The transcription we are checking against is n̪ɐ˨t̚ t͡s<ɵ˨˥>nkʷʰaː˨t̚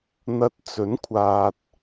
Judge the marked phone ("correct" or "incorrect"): correct